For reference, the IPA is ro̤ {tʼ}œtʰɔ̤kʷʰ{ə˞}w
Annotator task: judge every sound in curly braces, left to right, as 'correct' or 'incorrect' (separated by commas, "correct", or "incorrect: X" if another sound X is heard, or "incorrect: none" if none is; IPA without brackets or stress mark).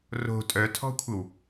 correct, incorrect: ə